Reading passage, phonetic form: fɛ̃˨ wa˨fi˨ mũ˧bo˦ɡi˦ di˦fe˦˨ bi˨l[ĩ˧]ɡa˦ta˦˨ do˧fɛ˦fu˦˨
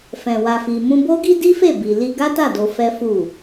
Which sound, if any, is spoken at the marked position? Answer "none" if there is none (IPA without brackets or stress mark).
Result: i˧